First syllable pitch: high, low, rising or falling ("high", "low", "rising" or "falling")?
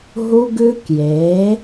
high